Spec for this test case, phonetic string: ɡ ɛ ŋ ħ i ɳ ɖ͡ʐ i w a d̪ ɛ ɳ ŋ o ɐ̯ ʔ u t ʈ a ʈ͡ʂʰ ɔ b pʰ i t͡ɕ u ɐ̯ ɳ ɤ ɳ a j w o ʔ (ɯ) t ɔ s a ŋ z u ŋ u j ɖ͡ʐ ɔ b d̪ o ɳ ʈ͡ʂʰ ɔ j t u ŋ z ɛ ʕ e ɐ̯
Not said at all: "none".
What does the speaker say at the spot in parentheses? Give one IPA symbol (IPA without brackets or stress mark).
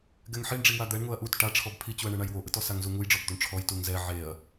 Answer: ɯ